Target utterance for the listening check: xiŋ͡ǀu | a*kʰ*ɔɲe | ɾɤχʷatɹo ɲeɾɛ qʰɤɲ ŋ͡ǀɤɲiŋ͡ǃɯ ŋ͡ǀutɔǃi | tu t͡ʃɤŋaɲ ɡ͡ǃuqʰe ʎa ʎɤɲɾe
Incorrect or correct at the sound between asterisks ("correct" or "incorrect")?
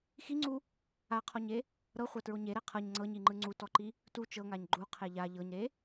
incorrect